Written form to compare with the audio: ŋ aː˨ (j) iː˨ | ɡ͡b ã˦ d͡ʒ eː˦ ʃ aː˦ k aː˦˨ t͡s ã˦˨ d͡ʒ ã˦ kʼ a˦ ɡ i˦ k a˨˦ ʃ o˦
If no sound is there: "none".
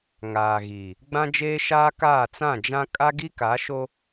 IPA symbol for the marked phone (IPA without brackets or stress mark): ɣ